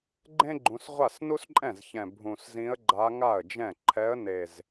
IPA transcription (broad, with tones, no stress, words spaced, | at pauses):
ɡ͡ǃẽ˥ɡ͡ǃũ˩˧sʁʷa˥˩s nu˥sǃʼɛ̃˥˩zçɛ̃˨˩ bʱũ˨˩szĩ˧˥ə̯ɡ͡ǃa˧˥ ŋa˥˩ə̯d͡ʒɛ̃˥˩ ǃʰɛ˧˥ə̯ne˨˩z